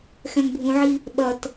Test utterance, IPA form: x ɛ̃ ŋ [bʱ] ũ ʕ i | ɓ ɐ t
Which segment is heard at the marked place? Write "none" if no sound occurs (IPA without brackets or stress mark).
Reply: bʱ